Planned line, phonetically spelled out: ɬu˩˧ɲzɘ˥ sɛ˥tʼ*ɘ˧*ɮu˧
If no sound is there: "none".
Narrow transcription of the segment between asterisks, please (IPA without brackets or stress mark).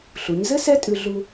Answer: ʉ˧